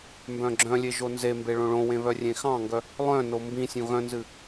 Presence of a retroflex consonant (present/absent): present